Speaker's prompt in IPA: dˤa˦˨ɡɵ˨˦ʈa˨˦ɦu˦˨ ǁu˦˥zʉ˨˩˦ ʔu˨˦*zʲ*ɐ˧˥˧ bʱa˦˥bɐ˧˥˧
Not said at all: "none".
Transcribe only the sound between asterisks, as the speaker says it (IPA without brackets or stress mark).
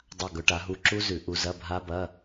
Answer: z